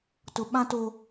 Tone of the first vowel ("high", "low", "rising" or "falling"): high